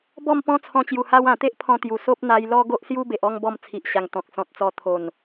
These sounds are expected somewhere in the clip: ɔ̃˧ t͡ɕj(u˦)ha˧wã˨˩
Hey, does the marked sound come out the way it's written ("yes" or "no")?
no